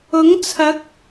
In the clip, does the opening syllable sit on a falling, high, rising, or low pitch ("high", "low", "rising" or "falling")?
rising